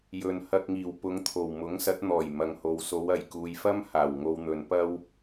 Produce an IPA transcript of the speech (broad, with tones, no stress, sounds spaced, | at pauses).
j ɵ˨ n h ɐ˧ k̚ ŋ iː˨˩ w p ʊ˧ ŋ t̪ʰ o˨˩ w m ʊ˨˥ ŋ s ɐ˨˥ t̚ n̪ ɔː˨˩ j m ɐ˨ ŋ h o˨ w s o˨˧ w ɐ˨˩ j k uː˨ j f ɐ˥ m h aː˨˩ w ŋ o˧ w n̪ ɵ˨˧ n p ɐ˥ w